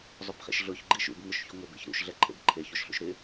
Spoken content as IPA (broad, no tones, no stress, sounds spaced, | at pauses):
zˤ ʊ b χ ḛ ʃ ɮ ʊ ç ɡ͡ǃ i ʃ ṵ b ŋ ʊ ʃ ç u ŋʷ ɪ b ḛ ç ɾ ṵ ʃ ɮ ɛ ǃʰ ḛ b ǃʰ e ç o ʃ ɬ ṵ ʃ ɾ ɪ